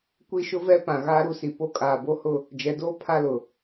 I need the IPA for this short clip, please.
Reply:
kʷi˦ʃʊ˦vɛ˦pã˨ ɣaː˦ɾu˦si˨ po˦kʼaː˨bo˦hʊ˦ | d͡ʒɛ˨˦doː˦ pʰa˦lʊ˨

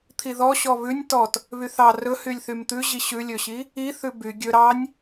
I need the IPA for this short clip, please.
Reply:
t̪ʰiðɔ ɕɔβʉnʲ tɔt | βyθɑ rɵhylʲθym t̪ʉ ʑiɕʉlʲɵɕi | iθʉ by ɡʲɵ ɾɑnʲ

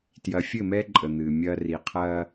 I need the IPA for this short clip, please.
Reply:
tjɐ˨fʲɘ˦˨mɛ˦ǃʼə˨ n̪ɨ˨ mʲɐː˦ ri˨qʰɐː˦

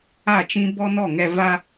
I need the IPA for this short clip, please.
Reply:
a˦˨t͡ʃĩ˦ bɔ˦nɔ˦˨ŋɛ˧ va˦

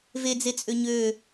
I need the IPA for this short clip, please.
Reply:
ved͡zet͡sʼø ɲø

